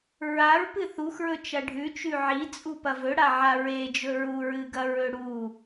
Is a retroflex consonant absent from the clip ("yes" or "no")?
no